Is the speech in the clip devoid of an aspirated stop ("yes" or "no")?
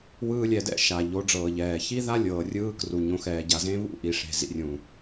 yes